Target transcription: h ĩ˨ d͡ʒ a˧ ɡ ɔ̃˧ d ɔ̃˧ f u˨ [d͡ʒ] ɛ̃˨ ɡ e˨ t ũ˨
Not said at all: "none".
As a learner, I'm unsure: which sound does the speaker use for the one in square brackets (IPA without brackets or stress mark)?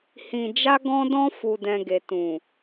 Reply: d